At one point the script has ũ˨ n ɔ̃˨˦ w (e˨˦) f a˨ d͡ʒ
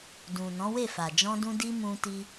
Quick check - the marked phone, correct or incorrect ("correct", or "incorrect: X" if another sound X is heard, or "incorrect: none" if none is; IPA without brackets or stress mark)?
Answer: incorrect: e˦˨